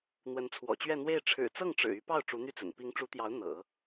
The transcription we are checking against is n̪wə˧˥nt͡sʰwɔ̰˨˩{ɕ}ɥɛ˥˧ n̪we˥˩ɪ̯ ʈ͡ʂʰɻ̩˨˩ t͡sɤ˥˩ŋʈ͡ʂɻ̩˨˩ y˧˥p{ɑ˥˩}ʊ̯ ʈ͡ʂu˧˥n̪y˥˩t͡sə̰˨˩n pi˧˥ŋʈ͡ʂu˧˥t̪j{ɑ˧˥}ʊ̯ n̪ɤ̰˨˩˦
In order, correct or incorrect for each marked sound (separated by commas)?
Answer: incorrect, correct, correct